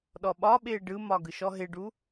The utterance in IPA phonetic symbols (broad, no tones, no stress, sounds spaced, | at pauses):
ɗ ɔ ɓ ɒ ɓ ɪː ɖ ɯ m ɒ ɡ ɯ ʃ ɔ ɦ ɪ ɖ u